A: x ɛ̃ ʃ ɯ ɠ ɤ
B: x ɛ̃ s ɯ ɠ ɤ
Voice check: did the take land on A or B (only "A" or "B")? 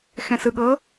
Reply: B